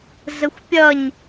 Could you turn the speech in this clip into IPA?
zəxʷpʲʌɲ

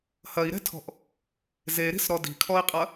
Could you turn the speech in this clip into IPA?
hɐi̯ɾɛ̤tʰɔ̤ʔ | zeɾi̤sɾɔ di̤kʰɔi̯qʼɐ

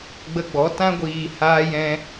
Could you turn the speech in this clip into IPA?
ɡ͡bə˧ɡ͡bɔ˨˦ tã˧ɡʷiː˨ haː˧jɛ̃˧

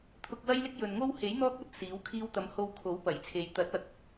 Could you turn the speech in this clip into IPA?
t̪ʰʊ˧k̚wɐ˥jlɪ˥k̚ jɵ˨nŋo˥w he˨˥j n̪ɔː˥k̚ɐ˧t̚ siː˨˥wkʰiː˥w t̪ɐ˨˧mho˧w kʰo˨˥wpɐ˨˩jt͡sʰe˨j t̪ɐ˨˥t̚ɐ˨k̚

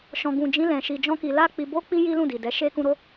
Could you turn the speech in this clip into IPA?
ʃɔ̃˨ɡũ˨d͡ʒĩ˨˦ lɛ̃˧ʃi˧d͡ʒɔ̃˦ki˧ la˦k͡pi˧bo˦k͡pi˦ ji˦lũ˦˨di˨dɛ˨˦ ʃe˦kũ˦ ɾo˦

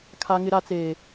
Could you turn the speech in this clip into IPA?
kʰa˦ŋɪ˦ɾa˦t͡seː˦

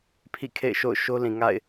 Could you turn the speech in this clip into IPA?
pʰḭ˦˨kʰḛ˦˨ɪ̯ʃo̰˦˨ʊ̯ ʃo˦lĩ˨ŋa̰˦˨ɪ̯

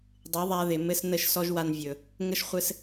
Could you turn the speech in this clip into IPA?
dˤɪ˨˦ðˤa˧ ðɪ˨mɘ˦s nə˦˨ʃ sɔ˦ʒwa˧nvʲɵ˨ | ŋə˦ʃχʷɘ˦s

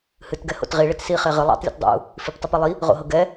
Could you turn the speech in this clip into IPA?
hɨt ɡɛho̰tʁi ɭetsi χeʁɨ lˠɑ̰tˤlʲṵtdˤṵ | fiptˤupelˠi | ʁo̰ɦɤɡɛ

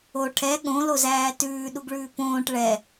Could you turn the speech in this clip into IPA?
o ʈʰɛ ɠõlozæː tʉːɗuɡɭʉː põːʈ ɭɛ

